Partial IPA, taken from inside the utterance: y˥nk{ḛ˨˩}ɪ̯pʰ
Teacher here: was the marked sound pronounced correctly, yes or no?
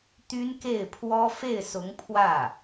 no